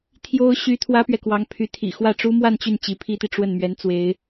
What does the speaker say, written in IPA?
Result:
t̪ʰ j o˥ ʊ̯ ɕ y˥ t̪ʰ w ä˥ p ɥ ɛ˨ k w ɑ˧˥ ŋ pʰ y˧˥ t̪ʰ ḭ˨˩ x w ä˥˩ ʈ͡ʂ u˥ m w a˥˧ n t͡ɕ y˥˩ n t͡ɕ i˧˥ pʰ i˥ t̪ i˨ ʈ͡ʂ w ə˥˩ n m ɥ ɛ˧˥ n t͡s w e˧˥ ɪ̯

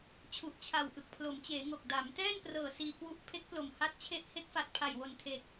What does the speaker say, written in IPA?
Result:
t͡ɕʰ u˨˩ ʔ t͡ɕʰ a˨˩ w ʔ ɯ˨˩ k̚ pʰ l o˩˦ m t͡ɕ eː˩˦ ŋ o˨˩ k̚ d a˩˦ m t ɛː˥˩ n p r ɤː˨˩ s iː˧ k w u˦˥ ʔ pʰ e˦˥ k̚ p l o˨˩ m h a˦˥ t̚ t͡ɕʰ e˦˥ ʔ h e˦˥ k̚ f a˨˩ t̚ pʰ a˨˩ j w o˨˩ n tʰ e˨˩ k̚

